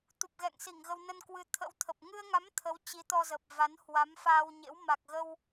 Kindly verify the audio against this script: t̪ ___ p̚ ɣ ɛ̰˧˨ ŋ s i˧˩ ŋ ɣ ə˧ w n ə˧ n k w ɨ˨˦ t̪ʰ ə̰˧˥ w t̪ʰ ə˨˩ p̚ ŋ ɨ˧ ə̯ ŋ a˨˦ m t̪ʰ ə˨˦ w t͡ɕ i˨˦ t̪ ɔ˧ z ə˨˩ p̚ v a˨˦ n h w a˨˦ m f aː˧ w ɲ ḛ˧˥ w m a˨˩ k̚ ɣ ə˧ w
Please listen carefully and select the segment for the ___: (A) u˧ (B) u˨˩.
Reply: B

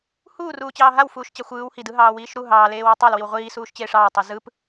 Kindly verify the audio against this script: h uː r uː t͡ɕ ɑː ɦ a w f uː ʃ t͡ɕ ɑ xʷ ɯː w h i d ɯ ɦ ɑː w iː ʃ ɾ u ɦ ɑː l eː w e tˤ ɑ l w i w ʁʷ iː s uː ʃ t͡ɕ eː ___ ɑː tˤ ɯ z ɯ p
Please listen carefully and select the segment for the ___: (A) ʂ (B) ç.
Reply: A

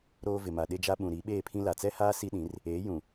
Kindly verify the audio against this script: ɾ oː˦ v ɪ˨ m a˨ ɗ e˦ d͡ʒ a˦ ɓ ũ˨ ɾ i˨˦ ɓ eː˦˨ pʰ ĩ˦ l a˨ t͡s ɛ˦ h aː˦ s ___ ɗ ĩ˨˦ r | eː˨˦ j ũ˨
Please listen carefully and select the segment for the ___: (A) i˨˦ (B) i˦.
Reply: B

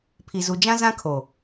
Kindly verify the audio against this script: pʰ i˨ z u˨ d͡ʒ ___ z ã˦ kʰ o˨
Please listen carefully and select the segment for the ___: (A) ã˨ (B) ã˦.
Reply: B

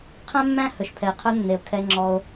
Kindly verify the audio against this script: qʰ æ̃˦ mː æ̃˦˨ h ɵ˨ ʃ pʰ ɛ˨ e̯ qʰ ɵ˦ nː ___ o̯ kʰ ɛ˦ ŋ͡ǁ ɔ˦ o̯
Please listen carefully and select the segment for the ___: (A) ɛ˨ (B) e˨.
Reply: B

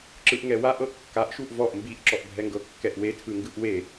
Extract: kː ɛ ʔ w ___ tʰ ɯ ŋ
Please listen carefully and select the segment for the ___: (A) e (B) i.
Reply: A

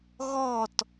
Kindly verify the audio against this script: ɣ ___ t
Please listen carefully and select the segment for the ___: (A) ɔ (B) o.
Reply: A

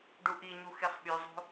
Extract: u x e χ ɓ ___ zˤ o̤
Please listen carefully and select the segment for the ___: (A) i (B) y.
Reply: B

